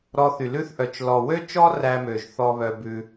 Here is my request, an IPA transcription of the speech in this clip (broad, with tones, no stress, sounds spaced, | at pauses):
ɾ ɔ˧ θ y˨ l ʉ˦ θ ʔ œ˨ t͡ʃ l ɔ˨ w ø˦ t͡ʃ ɔ˦ r æ˧ m ø˨ ʒ θ ɔ˧ β œ˧ b ʉ˧